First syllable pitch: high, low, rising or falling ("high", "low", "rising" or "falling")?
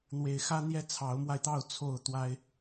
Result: low